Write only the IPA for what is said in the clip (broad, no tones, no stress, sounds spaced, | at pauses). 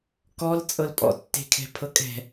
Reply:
k ɔ l t͡sʼ ɤ l pʼ ɔ̰ tː e̤ kʰ ɛ̤ pʰ ɤ kʼ ɛ̤